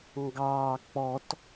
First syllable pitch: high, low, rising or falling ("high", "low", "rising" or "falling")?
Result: low